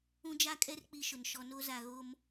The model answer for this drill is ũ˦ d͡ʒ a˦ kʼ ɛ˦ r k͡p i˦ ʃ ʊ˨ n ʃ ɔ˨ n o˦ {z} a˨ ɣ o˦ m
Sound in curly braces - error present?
no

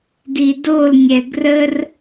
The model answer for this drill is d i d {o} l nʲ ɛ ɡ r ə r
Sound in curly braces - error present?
no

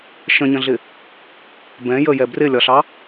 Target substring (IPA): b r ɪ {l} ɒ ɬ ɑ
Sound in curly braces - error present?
yes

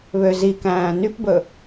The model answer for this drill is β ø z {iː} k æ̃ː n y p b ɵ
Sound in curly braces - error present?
yes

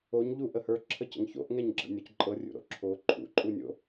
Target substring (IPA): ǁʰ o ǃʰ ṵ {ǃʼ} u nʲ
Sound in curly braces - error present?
no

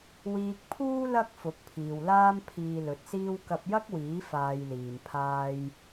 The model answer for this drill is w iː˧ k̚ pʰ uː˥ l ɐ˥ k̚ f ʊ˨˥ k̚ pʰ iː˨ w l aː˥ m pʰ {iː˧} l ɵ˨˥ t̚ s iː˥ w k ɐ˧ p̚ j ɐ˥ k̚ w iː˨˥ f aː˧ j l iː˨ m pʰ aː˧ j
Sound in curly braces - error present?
no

